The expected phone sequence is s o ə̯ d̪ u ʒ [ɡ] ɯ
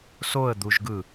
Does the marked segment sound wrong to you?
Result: no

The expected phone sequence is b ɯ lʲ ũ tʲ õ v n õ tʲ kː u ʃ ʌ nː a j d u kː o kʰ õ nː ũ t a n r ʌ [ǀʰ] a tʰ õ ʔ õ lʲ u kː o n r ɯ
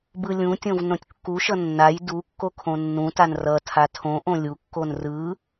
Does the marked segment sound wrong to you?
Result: yes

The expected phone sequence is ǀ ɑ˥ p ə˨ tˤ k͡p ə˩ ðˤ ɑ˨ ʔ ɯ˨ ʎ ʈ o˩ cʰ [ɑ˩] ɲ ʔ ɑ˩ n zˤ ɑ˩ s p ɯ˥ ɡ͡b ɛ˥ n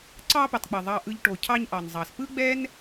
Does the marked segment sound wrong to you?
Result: yes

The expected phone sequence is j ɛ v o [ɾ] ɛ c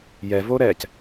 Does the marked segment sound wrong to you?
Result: no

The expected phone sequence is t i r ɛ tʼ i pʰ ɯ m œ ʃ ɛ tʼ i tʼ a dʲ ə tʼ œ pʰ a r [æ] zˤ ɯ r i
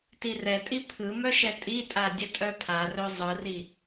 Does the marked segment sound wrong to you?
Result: yes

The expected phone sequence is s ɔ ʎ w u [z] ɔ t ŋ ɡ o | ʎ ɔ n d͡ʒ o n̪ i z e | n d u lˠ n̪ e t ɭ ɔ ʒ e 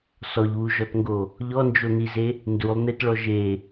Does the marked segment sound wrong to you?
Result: yes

